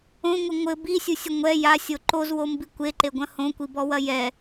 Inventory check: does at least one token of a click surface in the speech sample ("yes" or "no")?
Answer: yes